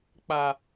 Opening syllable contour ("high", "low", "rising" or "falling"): low